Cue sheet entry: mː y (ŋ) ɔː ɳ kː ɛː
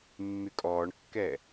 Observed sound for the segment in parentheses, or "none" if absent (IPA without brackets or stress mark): kʼ